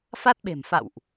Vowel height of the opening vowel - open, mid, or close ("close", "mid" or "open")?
open